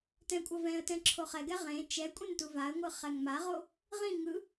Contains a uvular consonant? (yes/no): yes